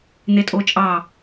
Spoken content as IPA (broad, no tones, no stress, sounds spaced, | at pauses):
n̪ e tʼ o t͡ʃʼ ɑ